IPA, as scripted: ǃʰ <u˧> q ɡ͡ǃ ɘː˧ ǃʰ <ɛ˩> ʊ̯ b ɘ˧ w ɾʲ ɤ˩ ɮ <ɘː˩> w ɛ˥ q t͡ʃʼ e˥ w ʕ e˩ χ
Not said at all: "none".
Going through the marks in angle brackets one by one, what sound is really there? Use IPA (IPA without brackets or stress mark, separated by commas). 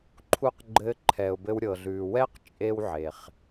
u˧, ɛ˩, ʉː˩